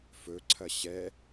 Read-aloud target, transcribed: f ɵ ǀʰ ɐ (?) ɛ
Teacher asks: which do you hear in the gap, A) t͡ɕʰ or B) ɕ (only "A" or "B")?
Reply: B